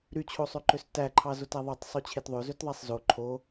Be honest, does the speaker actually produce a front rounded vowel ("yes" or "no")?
yes